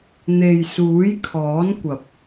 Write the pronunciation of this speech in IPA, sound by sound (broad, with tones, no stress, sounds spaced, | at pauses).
n̪ e˨ j s uː˨˥ j kʰ ɔː˨˥ n kʷ ɐ˨ p̚